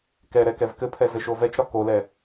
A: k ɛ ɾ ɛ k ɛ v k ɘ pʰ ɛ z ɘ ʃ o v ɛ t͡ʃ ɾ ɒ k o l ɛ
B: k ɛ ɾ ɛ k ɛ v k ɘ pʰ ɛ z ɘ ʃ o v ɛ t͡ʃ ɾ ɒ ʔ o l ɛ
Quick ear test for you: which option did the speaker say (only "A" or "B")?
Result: A